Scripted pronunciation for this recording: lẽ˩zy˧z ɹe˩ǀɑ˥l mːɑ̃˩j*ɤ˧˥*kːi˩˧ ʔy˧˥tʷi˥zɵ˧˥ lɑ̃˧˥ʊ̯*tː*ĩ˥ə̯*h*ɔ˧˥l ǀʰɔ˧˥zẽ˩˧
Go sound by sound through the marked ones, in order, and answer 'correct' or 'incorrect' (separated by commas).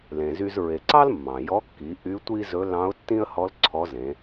incorrect, correct, correct